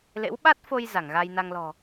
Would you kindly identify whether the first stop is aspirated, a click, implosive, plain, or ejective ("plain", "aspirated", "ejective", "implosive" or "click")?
implosive